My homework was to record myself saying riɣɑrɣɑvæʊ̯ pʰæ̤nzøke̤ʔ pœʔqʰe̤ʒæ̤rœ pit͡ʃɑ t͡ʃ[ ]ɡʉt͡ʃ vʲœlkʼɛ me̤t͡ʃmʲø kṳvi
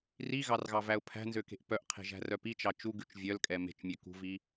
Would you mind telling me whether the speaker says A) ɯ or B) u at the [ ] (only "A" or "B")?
B